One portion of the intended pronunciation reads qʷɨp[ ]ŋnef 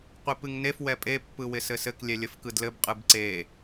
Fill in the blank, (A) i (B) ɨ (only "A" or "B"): B